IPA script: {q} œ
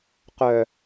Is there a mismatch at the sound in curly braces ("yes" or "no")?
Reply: no